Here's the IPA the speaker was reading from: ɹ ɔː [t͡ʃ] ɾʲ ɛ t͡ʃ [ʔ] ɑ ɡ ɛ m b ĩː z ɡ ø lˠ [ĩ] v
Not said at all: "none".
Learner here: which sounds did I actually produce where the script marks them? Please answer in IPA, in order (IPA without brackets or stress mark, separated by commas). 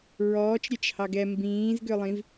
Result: t͡ʃ, h, ĩ